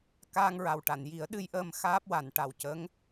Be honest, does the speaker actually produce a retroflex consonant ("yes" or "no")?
yes